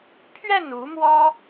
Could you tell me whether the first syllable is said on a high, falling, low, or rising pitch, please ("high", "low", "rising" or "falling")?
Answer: falling